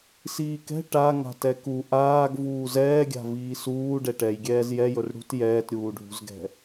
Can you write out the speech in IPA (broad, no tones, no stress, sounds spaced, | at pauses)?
s iː k ɛ̤ ʈ a ŋ a̤ t ɛ k u ʔ aː ɡ v uː z ɛː ɡʲ a̤ v iː s uː ɖ ɛ ʈ ɛ j ɡʲ ɛː z j ɛ j ɵ r ɽ ṳ t j ɛː t ɾʲ uː ɖʱ ṳ z ɡ ɛ̤